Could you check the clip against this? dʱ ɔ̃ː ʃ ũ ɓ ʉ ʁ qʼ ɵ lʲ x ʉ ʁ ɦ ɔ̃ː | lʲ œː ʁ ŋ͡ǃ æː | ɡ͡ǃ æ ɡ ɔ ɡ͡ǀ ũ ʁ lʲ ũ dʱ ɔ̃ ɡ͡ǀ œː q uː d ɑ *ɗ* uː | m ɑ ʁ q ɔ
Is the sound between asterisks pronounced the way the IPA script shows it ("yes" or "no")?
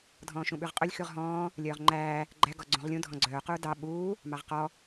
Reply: no